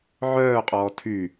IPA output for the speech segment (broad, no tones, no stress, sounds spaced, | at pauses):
ʕ œː qʼ ɔː tʰ y